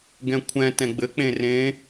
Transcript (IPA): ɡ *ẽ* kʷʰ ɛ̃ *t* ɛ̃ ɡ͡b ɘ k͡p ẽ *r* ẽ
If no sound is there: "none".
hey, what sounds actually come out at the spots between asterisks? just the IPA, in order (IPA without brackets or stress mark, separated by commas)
ɛ̃, t, r